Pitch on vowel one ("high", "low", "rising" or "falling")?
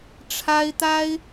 high